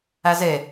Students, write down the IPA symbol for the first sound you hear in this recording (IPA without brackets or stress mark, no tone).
æ